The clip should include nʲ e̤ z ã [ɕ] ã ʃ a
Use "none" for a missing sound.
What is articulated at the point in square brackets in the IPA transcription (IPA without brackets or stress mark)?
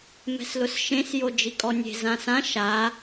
s